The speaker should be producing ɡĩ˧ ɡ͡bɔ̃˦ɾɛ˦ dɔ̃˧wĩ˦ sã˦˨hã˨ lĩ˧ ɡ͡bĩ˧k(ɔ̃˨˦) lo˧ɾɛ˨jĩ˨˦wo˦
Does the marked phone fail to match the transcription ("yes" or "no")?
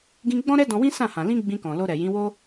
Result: yes